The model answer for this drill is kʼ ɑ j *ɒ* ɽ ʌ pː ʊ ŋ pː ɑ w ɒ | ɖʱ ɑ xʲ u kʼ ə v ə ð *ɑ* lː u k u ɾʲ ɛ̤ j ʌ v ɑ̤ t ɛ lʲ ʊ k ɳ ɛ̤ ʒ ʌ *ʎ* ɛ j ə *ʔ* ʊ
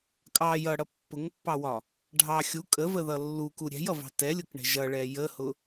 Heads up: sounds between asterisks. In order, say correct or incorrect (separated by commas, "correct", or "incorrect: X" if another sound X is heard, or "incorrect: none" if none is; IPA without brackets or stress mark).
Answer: incorrect: ʌ, incorrect: ʌ, incorrect: ɭ, incorrect: h